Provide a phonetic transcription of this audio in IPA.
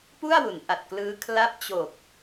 p u˥˩ a̯ w u˩˦ n ʔ a˨˩ t̚ k l ɯː˦˥ kʰ l a˦˥ p̚ t͡ɕ o˨˩ k̚

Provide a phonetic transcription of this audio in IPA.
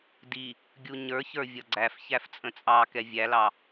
d i | ɡʲ u ɲ ə˞ ç ə˞ vʲ ʌ ɡ͡ǀ æ f ç æ f t͡sʼ ə̃ t͡sʼ ɑ k ɛ vʲ æ l ɑ

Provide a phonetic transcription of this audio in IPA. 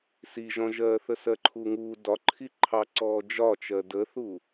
s i ʒ ɔ̃ ʒ ɜː θ ə s ɜ ǃʰ uː ŋ uː d ɒ ǃʰ i ǃʰ ɑ ǀ ɔː d͡ʒ ɒ t͡ʃ ɜ d ə θ u

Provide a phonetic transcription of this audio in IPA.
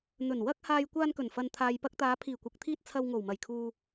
n̪ ɵ˨˩ n w ɐ˧ k̚ h aː˨ j kʷ aː˧ n k ɵ˨˩ n f ɐ˨ n t̪ʰ aː˨ j p ɐ˧ k̚ t̪ aː˨˧ pʰ iː˨˩ kʷ ɐ˨ k̚ t̪ʰ iː˧ t̚ t͡sʰ ɐ˧ w ŋ o˨˩ w m ɐ˨˩ j kʰ uː˧

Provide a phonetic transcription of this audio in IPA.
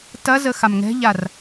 t ɐ z ə x a m ŋ ɛ̤ ʎ a r

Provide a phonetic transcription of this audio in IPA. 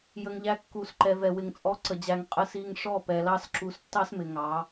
j ə˨ ŋ ʎ æ˨ kː u˨ s ǃ ɛ˨ v ɛ˨ w ɪ˨ ŋ t͡sʼ ɔ˨˦ ǀ ə˨ d͡ʑ æ˨ ŋ qʼ ə˨ s i˨ ŋ ʂ ɔ˦˨ p ɛ˨ l ɑ˦ s ǁ u˨˦ s tː ɑ˦ s m ɪ˨ ŋ ɑ˨˦

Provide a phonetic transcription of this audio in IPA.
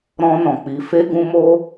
ɾ ɔ̃˦ n ɔ̃˧ k͡p i˧ f e˦ ɡ ũ˦ m o˦

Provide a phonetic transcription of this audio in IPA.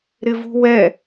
ɾ ɪ v ṳ w ɛ

